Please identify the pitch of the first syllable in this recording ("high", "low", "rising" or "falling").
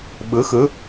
rising